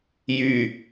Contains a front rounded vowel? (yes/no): yes